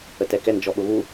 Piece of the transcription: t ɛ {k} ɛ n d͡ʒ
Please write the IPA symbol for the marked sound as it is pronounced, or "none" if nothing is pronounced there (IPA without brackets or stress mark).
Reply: k